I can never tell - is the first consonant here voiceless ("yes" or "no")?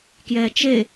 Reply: yes